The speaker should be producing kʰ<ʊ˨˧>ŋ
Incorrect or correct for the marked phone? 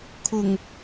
incorrect: ʊ˨˩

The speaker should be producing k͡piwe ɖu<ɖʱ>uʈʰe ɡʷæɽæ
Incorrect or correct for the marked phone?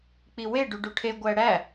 incorrect: ɖ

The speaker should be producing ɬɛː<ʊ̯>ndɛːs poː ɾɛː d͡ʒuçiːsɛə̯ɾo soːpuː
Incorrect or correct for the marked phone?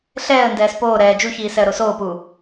incorrect: ə̯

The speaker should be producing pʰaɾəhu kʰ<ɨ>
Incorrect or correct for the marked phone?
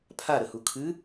correct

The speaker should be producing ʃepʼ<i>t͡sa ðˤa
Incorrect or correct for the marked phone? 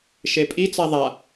correct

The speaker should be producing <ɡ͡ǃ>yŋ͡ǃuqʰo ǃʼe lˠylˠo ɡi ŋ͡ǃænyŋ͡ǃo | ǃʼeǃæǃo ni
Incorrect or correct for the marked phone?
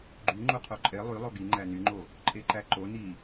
correct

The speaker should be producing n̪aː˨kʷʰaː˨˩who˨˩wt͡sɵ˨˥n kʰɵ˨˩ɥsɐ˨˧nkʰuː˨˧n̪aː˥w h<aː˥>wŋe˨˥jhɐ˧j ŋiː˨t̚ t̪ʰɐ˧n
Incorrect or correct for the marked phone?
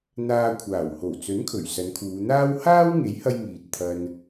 correct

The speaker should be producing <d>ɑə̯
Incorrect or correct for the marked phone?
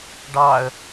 incorrect: ɖ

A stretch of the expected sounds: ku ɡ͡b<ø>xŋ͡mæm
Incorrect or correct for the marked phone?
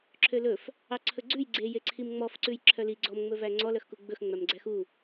incorrect: ɵ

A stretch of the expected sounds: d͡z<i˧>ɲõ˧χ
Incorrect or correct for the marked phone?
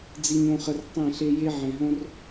correct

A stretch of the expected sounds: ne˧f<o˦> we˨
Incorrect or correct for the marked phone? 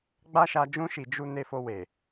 incorrect: o˧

